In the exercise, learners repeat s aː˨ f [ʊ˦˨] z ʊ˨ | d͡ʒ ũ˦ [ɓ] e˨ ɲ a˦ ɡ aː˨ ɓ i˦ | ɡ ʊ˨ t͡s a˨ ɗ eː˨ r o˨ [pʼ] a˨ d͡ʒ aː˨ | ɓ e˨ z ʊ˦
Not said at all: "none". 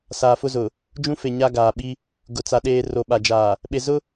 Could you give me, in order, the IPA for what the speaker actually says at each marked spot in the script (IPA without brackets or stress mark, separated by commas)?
ʊ˦, f, ɓ